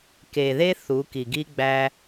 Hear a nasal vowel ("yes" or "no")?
no